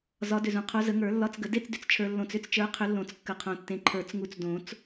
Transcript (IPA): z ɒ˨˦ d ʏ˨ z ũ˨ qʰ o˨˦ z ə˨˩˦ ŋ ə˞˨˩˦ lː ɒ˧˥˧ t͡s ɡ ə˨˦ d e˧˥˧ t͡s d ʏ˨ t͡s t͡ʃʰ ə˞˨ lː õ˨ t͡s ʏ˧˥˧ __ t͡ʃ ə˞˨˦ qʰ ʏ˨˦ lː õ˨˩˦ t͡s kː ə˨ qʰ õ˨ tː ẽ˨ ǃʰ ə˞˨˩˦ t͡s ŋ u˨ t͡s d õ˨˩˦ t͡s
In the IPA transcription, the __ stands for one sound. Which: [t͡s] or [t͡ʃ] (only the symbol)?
t͡s